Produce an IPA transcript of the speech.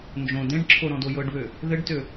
nd͡ʒõ dẽɖǁʰo ɾɔ̃dojɤɖβø | ðɘɖtø

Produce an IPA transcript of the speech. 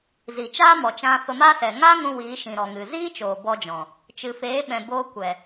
zi˨t͡ʃaː˦mɔ˨ t͡ʃã˧fə˧ma˦sɛ˨ ŋaː˦ŋũ˧ wiː˨˦ʃĩ˨ɾɔ˨ŋɨ˨ ziː˦t͡ʃoː˨ bɔ˧d͡ʒɔ̃˨ | t͡ʃɨ˨feː˨˦ɓɛ̃˨ boː˧ kʷɛ˨

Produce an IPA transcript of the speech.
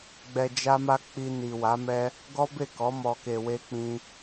ɡ͡bɛ˧d͡ʒa˦ma˦ k͡pi˧ ni˨wa˨˦mɛ˦ | ɡɔ˦be˦˨kɔ˨˦ mɔ˧ke˧we˦k͡pĩ˦

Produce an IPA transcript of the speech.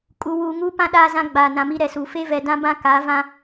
kʼu˨wuː˨ ŋuː˦pã˦ ɗaː˦zã˦ɡ͡baː˨ nã˨mi˦ɾɛ˨suː˨ fe˦vɛ˨dã˦bã˦ ka˨˦vã˦

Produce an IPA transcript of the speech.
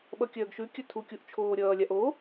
ɓʌkʲœːɡʃʉkʲœ tʰukʲuʔ t͡ʃʰoːɾʲʌːlʲaʔ o

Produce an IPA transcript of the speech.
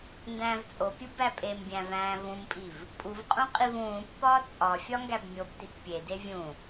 ndæ̃ːvt͡sʼopʲu bæpʼembʲæ̃ væ̃ːvũmpʼiv | pʼuvqʼũ qʼivũːpːɒː t͡sʼɒ fʲɒŋɡæbmʲobtit pʲede vʲũ

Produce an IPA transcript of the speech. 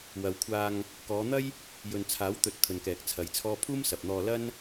wɐ˨wkʷʰaː˧ŋ | kɔː˨˧n̪ɐ˥j | jɵ˨nt͡sʰaː˨˥w t̪ɵ˧t̚ t̪ʰɵ˨nkɛː˨k̚ t͡sʰɐ˨˧jt͡sʰɔː˥ pʰuː˥msɐ˨p̚n̪ɔː˧lɐ˥n

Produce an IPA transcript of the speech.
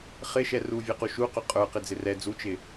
χɪʃɛ ruvʲɛqu ʃuqʊ qʼə˞ qɪd͡zɪrɛ d͡zut͡ʃɪ

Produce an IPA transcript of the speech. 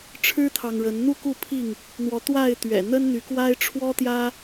ʈ͡ʂʰɻ̩˦t̪ʰɑ˨ŋɻə˨˦n n̪u˥˨ku˥˨ pʰi˥˨ŋ | n̪wɔ˨˦t̪wa˥˨ɪ̯t̪ɥɛ̰˨˩ n̪ə˦nn̪y˨˦kwa˦ɪ̯ ʈ͡ʂʰwɔ˦t̪jä˦

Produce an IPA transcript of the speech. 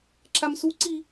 ǁamsuǀi

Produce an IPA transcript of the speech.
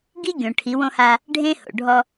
ɡi˦ɡʲõ˨ ʈʰi˨˦wõ˦ha˦ | ɖʱẽ˦ho̰˨ɖʱɔ˦

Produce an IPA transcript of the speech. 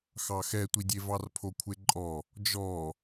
xɑxɛtʷidʲe vɑrpʰokʷʰeǃʼɔ | d͡ʒɔ

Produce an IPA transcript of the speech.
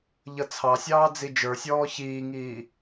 ʎʌt͡sʰɑsʲɑː d͡zid͡ʒə˞sʲɔː çiːŋiː

